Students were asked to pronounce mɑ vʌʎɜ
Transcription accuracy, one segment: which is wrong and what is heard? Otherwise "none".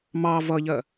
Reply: none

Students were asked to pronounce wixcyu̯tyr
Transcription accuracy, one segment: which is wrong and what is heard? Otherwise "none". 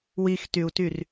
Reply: c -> t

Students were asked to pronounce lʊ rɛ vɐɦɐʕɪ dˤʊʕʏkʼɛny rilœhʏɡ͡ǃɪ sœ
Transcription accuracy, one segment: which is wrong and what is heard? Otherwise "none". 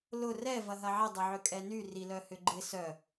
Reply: none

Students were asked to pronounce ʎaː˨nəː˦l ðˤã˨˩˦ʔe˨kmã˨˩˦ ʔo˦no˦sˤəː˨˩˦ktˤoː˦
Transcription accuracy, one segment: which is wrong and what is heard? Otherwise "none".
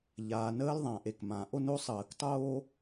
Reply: none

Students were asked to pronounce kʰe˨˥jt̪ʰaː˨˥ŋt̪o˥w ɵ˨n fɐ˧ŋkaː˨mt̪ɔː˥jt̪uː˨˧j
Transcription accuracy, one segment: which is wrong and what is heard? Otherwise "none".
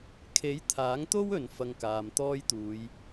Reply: none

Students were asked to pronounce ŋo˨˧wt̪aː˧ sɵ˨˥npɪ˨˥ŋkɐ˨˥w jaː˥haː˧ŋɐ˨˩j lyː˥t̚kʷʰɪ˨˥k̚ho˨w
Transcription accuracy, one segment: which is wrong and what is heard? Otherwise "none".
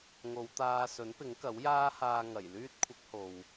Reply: none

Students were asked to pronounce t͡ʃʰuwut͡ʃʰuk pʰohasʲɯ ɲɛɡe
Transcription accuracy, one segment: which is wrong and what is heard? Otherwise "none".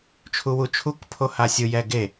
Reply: ɲ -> j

